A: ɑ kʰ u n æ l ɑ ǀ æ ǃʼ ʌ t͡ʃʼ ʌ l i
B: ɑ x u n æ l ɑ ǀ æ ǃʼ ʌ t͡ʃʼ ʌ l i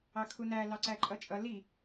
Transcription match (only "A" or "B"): A